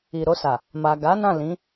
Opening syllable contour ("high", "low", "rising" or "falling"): low